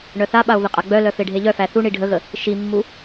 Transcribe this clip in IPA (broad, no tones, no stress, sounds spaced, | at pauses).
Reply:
ɳ œ θ a ɓ a o̯ v ə qʼ a ɡ͡b œ l œ f e ɖʱ e ʎ œ f æ θ u ɳ i ɖʱ ə ɣ ə | ʃ i mː u